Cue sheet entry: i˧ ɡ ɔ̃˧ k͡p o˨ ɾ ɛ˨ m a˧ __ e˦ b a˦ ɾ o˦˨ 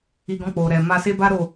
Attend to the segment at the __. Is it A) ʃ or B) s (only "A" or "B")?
B